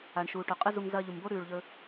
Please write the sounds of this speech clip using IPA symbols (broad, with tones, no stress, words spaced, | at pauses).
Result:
a˨ɳʃuː˨ ʈɵ˨qʼɨ˦zu˧ŋ zɐː˧ʎu˨mbo˦ ɾʉː˨ɭʎɵ˧